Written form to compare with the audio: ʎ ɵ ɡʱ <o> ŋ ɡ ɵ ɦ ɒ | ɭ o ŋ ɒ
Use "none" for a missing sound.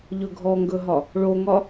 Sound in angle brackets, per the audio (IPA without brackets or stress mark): ɔ